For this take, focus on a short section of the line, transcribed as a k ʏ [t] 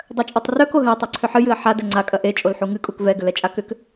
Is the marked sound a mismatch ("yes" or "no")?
yes